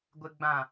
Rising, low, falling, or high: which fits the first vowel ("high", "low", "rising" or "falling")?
low